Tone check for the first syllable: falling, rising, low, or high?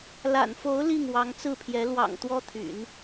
low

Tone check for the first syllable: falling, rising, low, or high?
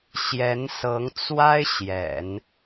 rising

